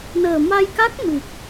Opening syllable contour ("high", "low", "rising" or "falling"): low